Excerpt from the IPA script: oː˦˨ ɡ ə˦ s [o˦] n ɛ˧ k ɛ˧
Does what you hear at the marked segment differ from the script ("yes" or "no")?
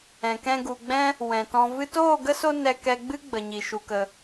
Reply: no